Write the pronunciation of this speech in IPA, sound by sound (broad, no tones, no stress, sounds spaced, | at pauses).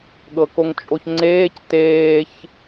ɠ ɤ k o ŋ t͡ʃʼ o ç ŋ͡ǀ eː c t eː ç